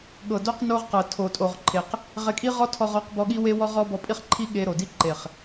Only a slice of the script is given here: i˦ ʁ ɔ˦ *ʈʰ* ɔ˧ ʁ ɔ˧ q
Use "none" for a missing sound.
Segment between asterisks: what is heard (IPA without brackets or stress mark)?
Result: tʰ